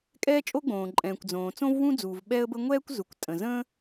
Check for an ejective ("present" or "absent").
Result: present